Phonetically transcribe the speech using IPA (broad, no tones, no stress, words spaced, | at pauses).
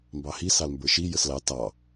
mbɑhi sɑlmbə˞ʃi jəslɑ tɑ